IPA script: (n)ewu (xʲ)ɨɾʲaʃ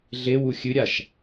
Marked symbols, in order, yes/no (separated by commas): no, yes